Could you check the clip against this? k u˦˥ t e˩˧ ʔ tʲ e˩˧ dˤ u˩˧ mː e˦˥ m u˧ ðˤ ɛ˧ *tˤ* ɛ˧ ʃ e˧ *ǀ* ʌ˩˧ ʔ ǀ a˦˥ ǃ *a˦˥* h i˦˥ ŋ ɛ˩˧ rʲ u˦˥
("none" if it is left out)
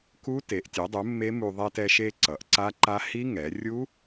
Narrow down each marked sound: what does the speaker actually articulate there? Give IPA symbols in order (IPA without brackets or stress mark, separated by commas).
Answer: t, ǀ, a˦˥